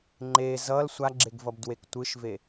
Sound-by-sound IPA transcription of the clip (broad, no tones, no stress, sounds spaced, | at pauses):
ŋ͡ǃ e z ʌ l sʷ a ɡ͡ǁ e ɡ v ʌ b d w e k tʷ ɯ ʃ v e